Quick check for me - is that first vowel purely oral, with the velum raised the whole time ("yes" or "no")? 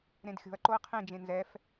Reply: no